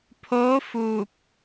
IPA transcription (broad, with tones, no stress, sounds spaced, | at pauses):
pʰ oː˧˥ f uː˧˩ p̚